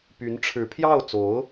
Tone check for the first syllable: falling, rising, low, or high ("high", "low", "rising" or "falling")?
rising